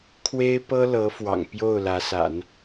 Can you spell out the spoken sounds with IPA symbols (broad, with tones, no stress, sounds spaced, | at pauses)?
kʰ w e˥ ɪ̯ p ɤ˥ l ɤ˧˥ f w ɑ̰˨˩ ŋ p j o˥˩ ʊ̯ l ä˧˥ s a̰˨˩˦ n